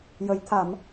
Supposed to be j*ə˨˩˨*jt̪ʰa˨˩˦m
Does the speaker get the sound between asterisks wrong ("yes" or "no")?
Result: yes